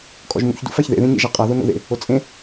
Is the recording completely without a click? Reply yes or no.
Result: yes